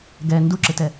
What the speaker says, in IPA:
ɡ ɛ n d u ǁ ɪ t ɛ

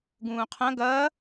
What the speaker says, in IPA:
ɡ ũː qʰ ɐ̃ ɡ ɐː

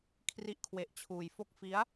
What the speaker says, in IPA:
kʰ r i˥˩ ʔ kʰ w e˦˥ ʔ t͡ɕʰ uː˧ j f o˦˥ k̚ f i˦˥ a̯

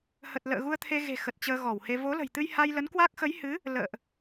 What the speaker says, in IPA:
h ə˨˩ t̚ l ə̰ː˧˨ ɣ u˧ ə̯ t̪ʰ e˧ ɣ e̤˨˩ x ə˨˩ t̚ t͡ɕ əː˧ ɣ ɔ˧˩ w h e˧ v o˨˦ l ə̤˨˩ j t̪ ɨ˧ j h a˧ j l ə˨˦ n k w a˦˥ k̚ x ə˨˦ j h ɨ˨˦ | l ə̰ː˧˨ ʔ

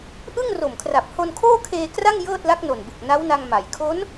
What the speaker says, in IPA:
ʔ ɯ˥˩ ŋ r o˨˩ m kʰ r a˨˩ p̚ h o˧ n kʰ oː˥˩ kʰ eː˧ k r a˥˩ ŋ j ɤː˥˩ t̚ l a˦˥ k̚ n o˨˩ n b ɯ˨˩ k̚ n a˦˥ w n a˧ ŋ m a˩˦ j kʰ o˦˥ n

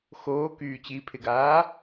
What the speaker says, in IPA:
x oː k yː t͡ɕ i pʰ ɪ ɡ aː

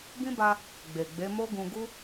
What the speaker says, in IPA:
b ĩ˦ b a˧ | ɡ͡b e˨ ɡ͡b e˨˦ m o˦ ɡ ũ˧ ɡ u˦

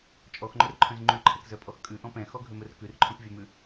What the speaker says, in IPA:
t͡ʃʼ ɔ x ŋ͡ǃ ɵ r ǃʰ œ̃ z ŋ͡ǃ ʉ ǃʰ ɛ k z œ pʼ ɔ x kʼ ʉ ʔ ɔ̃ p ɛ̃ x ɔ ɡʱ ø m ɵ r k ʉ r ǃʰ œ̃ p vʲ œ m ʉ

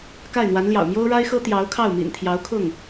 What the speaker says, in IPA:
k a˥˩ ɪ̯ n̪ w a˧˥ n l j ɑ̰˨˩ ʊ̯ m j o˥ ʊ̯ ɻ a˥ ɪ̯ x ɤ˥ t̪ j ɑ˧˥ ʊ̯ kʰ ɑ˥˩ ʊ̯ m ḭ˨˩ n t̪ʰ j ɑ˧˥ ʊ̯ kʰ ʊ˥˩ ŋ

